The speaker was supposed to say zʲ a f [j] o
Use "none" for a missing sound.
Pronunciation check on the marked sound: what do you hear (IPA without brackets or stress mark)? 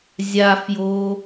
j